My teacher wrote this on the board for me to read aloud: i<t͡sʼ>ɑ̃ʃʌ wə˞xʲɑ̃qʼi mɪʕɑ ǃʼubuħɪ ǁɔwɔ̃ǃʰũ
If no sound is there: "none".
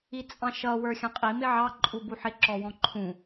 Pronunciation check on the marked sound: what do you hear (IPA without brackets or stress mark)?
t͡sʼ